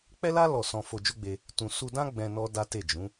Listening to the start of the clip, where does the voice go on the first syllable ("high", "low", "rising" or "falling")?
high